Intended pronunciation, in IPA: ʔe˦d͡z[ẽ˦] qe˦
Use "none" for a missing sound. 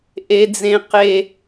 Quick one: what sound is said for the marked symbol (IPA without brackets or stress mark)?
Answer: ẽ˦